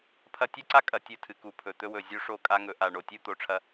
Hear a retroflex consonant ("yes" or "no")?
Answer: yes